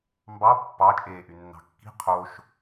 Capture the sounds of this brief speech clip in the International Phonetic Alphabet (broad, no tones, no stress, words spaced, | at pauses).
mbɑ pːɑ t͡ʃʼeːʔynːɑ̤kːi̤ qʰoʃ